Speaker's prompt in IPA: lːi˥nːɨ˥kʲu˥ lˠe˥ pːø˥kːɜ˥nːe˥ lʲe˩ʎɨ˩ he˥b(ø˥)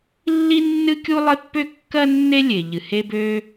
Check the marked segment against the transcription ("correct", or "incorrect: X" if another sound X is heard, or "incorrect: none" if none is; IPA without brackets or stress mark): correct